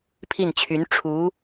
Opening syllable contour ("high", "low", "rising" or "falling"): falling